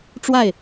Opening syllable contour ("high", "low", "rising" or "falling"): falling